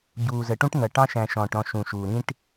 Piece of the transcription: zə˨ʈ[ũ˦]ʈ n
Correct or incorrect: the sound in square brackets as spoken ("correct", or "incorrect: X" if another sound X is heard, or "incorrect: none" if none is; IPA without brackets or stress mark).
correct